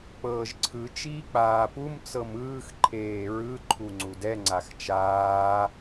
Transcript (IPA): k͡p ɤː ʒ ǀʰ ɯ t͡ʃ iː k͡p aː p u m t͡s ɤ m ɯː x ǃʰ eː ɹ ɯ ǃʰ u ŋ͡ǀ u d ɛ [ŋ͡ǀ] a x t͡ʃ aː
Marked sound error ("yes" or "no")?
no